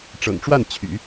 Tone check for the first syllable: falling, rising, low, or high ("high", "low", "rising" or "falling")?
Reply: low